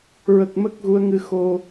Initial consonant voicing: voiced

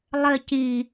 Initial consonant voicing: voiced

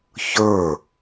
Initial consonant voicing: voiceless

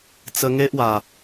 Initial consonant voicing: voiceless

